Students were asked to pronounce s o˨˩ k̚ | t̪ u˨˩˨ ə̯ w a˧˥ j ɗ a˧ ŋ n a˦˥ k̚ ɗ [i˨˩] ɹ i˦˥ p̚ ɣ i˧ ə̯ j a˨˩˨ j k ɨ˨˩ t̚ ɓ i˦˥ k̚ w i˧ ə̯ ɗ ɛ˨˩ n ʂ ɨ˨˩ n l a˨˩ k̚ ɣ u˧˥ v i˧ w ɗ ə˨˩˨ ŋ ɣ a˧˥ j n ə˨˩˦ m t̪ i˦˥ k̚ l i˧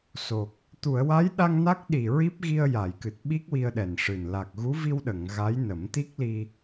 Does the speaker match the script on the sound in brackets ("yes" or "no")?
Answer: yes